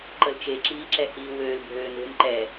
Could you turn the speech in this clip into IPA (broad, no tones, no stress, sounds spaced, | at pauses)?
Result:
ǃ ə l t͡ʃ e ǁ iː ǁ ɛ h iː w øː l bʱ øː n e̤ m ǃ ɛ